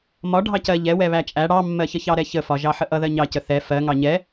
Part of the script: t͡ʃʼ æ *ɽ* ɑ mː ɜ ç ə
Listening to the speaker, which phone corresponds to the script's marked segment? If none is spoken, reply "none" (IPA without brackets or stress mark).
ɽ